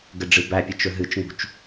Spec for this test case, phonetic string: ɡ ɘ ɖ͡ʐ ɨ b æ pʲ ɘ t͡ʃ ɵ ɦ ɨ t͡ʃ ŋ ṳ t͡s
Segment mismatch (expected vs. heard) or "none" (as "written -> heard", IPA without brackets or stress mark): t͡s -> t͡ʃ